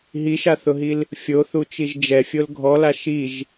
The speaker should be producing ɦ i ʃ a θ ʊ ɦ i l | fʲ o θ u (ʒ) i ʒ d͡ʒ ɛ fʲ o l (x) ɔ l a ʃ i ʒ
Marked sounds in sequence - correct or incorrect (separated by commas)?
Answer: incorrect, incorrect